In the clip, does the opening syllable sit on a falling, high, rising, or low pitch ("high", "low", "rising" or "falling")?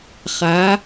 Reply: rising